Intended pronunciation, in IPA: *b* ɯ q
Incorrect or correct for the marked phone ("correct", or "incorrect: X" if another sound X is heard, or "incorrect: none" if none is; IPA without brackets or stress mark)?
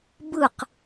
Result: correct